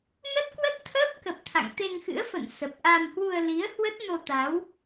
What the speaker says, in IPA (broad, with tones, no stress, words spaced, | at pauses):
nə˦˥t̚kwə˦˥t̚t̪ʰəː˦˥p̚kə˨˩p̚ t̪ʰa̰˧˨ŋt̪e˧ŋxɨ̰˧˥ə̯fə̰˧˨n sə˨˩p̚ʔa˧m hwu˧ə̯li˨˦ə̯ hwə˦˥t̚no˧t̪a˨˦w